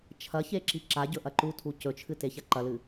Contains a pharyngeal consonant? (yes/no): no